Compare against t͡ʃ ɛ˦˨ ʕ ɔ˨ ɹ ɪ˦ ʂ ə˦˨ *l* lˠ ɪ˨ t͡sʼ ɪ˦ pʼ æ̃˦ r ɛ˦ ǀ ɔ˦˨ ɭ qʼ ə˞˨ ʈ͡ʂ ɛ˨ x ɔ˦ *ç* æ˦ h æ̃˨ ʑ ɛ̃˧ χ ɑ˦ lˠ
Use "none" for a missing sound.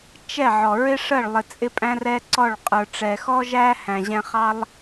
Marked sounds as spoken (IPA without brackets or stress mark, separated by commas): ɭ, ʒ